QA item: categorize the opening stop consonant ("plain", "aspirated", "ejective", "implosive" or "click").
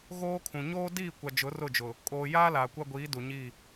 aspirated